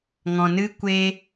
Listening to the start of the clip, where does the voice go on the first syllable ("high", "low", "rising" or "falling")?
low